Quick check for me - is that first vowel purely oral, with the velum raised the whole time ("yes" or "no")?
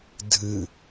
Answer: yes